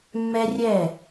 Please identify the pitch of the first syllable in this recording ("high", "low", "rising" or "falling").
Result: high